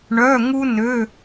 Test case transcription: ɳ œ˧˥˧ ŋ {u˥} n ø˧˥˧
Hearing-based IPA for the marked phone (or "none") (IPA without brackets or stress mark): u˥